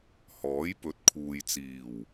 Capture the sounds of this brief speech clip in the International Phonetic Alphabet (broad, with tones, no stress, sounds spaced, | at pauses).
h ɔː˨˥ j p ɵ˨˥ t̚ kʰ uː˨ j t͡s iː˨˩ w